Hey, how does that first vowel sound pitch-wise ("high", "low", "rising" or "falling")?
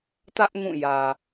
high